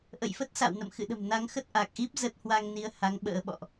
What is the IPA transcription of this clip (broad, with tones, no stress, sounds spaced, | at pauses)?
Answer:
ʔ ə̰˧˨ j f ə˦˥ t̚ s a̰˧˨ w n ə̰˧˨ m x ɨ̰˧˨ ɗ ə̤˨˩ m n a˨˦ ŋ x ə˦˥ t̚ ʔ a˨˩ k̚ ʔ i˦˥ p̚ z ə˦˥ t̚ h w a˧ ŋ n i˨˦ ə̯ h a˨˦ ŋ ɓ ə̰ː˧˥ ɓ ɔ̰˧˨ ʔ